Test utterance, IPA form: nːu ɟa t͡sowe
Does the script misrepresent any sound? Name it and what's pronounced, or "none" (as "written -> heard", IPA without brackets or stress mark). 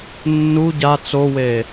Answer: none